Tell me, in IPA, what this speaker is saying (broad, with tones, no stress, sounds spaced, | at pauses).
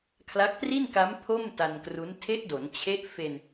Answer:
kʰ l a˦˥ k̚ t r i˥˩ n k a˦˥ m pʰ o˥˩ m t a˧ n k r u˦˥ n tʰ e˦˥ ʔ d o˩˦ n t͡ɕʰ e˦˥ ʔ f e˧ n